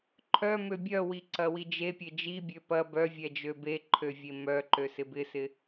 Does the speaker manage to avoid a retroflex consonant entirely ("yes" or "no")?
yes